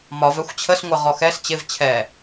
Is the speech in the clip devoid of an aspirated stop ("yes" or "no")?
no